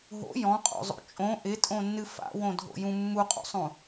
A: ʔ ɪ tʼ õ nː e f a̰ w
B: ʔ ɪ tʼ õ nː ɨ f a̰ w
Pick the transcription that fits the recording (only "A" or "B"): B